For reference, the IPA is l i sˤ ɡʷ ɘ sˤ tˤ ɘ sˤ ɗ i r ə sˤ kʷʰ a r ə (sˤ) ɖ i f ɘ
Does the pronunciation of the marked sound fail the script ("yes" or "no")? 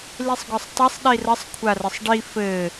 no